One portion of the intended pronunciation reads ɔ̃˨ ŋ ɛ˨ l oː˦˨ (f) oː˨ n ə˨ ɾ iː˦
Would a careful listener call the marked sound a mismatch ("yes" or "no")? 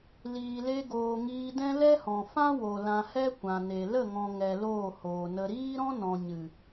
yes